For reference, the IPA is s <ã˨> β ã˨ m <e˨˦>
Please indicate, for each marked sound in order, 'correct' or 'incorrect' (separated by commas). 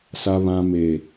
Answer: incorrect, incorrect